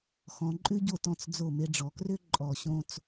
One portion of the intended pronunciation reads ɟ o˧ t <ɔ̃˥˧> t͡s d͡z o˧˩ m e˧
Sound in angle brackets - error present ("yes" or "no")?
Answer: yes